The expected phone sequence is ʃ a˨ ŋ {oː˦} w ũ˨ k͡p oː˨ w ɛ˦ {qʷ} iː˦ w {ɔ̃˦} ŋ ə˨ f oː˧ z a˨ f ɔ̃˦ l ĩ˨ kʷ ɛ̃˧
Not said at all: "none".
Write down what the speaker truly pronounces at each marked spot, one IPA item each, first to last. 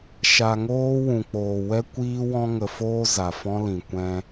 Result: oː˦, kʷ, ɔ̃˧

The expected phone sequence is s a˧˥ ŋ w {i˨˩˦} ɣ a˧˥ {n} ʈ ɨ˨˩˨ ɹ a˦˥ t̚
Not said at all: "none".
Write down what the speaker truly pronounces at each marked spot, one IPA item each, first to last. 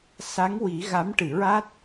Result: i˨˩˦, m

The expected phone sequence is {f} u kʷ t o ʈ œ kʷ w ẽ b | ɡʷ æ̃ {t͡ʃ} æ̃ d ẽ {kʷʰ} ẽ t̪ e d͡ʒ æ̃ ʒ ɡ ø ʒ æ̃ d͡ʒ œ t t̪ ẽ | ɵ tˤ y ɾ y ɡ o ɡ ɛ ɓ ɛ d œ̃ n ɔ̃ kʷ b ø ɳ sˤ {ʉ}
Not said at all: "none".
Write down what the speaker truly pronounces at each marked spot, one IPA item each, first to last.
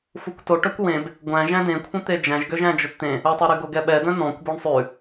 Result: f, ʒ, kʷʰ, ʉ

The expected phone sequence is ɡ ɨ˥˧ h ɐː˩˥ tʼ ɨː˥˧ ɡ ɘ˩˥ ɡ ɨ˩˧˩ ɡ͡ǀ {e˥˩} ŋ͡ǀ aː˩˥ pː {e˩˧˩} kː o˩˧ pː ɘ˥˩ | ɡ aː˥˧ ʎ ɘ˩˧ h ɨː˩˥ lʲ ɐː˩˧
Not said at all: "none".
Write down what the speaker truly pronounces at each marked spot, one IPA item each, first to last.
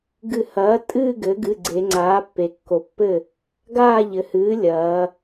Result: e˩˧, e˩˧

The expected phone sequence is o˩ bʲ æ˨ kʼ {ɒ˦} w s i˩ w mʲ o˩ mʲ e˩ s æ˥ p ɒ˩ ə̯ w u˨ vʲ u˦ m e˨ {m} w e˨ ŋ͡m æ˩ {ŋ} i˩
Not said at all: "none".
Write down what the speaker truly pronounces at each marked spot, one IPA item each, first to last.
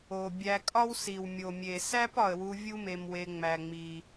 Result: ɒ˦, m, ŋ͡m

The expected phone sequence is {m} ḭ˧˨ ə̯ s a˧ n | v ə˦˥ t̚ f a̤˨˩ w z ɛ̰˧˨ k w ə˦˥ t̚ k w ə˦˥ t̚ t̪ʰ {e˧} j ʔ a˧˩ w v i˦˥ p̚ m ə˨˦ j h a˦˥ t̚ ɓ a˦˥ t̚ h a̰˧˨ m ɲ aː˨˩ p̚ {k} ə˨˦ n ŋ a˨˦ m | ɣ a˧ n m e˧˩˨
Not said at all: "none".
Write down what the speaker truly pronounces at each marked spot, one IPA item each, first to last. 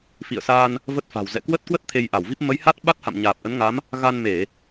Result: f, e˧, ʔ

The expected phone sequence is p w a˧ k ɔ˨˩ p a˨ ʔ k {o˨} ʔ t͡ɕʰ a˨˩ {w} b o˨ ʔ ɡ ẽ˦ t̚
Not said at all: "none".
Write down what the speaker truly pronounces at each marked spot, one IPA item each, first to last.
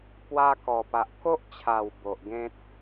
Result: o˦, w

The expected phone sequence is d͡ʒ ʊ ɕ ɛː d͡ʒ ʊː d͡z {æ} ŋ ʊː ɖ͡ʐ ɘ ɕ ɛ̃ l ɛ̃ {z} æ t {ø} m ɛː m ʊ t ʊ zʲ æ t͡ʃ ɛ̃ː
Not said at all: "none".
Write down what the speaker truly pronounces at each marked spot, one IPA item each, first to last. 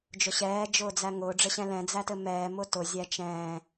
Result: æ, d͡z, ɘ

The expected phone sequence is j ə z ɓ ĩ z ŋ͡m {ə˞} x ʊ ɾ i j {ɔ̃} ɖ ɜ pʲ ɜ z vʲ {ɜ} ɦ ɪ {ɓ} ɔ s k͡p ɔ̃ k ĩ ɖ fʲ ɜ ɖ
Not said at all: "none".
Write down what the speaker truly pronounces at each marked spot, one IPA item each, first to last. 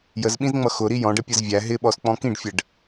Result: ʌ, ɔ̃, æ, ɓ

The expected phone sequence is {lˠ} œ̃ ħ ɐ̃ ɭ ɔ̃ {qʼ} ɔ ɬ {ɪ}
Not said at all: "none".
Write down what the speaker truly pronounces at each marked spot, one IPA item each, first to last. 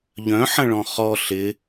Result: ʎ, χ, ɪ

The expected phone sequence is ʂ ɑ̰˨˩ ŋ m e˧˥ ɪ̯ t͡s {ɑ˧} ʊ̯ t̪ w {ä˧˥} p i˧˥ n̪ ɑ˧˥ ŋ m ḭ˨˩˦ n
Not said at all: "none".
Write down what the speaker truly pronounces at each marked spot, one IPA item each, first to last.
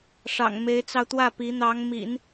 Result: ɑ˧, ä˥˩

